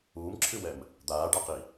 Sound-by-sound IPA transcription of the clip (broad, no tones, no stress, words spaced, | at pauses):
uːmǁʰɨwɛm | d̪aːɖaqi